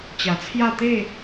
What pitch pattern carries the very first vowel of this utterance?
low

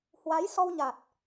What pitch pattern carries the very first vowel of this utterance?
rising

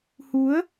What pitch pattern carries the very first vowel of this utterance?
rising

